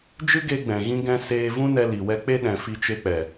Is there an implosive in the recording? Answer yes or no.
yes